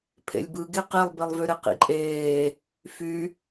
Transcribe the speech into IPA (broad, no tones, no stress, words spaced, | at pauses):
pʰḛlʲbɯɡe qilˠbilˠvyɾɘ qḭǃʼeː | fy